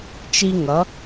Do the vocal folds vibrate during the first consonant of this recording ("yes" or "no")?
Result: no